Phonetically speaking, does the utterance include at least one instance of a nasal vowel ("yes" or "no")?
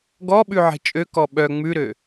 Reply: no